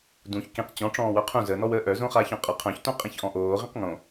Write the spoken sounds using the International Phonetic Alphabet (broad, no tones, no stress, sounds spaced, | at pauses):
d ũ ç k ĩ q t͡ɕ ɔ̃ ʈ͡ʂ ɔ̃ː w œ qʰ ũ z ə n ɔ w əː ʔ œ z õ χ aː ç ɔ̃ qʼ ə qʰ œ̃ ç t õ qʼ ĩ ç ʔ ɔ̃ ʔ oː ʁ ĩ q ŋ õ